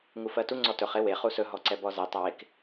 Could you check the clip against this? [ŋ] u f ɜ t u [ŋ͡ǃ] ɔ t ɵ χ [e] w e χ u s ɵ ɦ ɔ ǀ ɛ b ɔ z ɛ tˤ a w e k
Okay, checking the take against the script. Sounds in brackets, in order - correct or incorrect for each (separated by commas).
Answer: correct, incorrect, correct